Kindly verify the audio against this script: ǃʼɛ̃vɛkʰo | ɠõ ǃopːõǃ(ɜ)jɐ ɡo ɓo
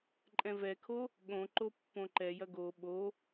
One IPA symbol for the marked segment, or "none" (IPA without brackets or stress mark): ɛ